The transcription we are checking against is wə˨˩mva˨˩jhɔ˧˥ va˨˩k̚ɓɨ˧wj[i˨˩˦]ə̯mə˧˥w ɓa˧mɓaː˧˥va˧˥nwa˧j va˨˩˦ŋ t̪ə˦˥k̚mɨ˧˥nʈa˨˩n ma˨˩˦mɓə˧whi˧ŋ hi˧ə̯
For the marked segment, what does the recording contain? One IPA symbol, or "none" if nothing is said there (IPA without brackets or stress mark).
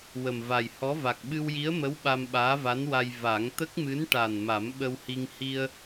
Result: i˧˥